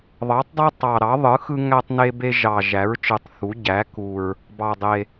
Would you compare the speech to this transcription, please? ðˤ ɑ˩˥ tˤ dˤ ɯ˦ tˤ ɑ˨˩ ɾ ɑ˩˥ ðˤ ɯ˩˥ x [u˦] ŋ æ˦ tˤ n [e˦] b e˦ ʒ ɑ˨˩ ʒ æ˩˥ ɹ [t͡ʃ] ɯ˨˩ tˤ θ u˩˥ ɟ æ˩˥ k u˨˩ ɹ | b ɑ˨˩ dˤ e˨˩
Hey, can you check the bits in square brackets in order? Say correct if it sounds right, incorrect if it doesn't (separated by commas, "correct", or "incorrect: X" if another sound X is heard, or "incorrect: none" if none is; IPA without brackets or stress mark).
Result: incorrect: ɯ˦, correct, correct